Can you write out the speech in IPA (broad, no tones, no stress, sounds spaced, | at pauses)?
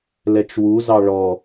l ɛ t͡ʃ w u z ɑ ɭ ɔ